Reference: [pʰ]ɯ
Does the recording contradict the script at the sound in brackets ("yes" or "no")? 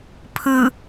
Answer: no